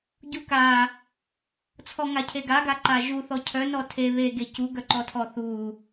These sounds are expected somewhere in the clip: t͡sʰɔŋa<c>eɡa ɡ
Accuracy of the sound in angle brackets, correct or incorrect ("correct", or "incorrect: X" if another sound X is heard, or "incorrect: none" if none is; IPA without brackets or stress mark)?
incorrect: cʰ